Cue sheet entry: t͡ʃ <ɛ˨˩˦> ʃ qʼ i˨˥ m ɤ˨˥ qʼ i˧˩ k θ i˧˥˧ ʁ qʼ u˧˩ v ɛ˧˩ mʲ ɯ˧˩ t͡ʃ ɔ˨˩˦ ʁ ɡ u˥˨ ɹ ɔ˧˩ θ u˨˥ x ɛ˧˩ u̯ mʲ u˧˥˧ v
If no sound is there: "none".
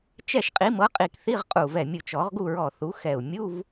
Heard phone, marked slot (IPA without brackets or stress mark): ɛ˥˨